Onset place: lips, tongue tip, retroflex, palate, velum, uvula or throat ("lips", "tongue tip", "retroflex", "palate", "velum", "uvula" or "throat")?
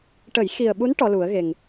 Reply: retroflex